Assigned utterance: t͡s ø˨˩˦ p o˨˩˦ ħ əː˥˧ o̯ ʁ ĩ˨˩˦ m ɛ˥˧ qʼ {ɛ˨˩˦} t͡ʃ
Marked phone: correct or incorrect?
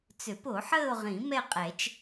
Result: correct